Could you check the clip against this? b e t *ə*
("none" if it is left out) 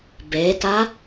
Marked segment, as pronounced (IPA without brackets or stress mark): a